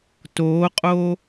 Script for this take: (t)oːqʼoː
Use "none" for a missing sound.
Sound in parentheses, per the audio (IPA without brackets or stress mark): t